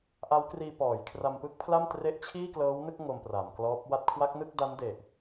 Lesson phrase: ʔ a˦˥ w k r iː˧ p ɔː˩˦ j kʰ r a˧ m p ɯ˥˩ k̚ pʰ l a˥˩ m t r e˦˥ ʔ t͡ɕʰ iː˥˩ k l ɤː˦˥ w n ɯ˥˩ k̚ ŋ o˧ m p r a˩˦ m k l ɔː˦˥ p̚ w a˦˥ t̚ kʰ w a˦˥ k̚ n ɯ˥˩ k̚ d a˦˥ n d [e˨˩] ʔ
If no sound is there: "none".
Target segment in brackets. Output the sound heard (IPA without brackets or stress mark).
e˨˩